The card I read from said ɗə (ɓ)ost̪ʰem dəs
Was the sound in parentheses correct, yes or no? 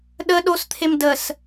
no